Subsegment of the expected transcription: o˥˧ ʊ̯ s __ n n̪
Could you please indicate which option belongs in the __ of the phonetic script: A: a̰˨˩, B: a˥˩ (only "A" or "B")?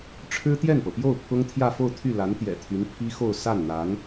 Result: B